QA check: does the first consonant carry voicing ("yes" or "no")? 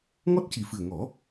yes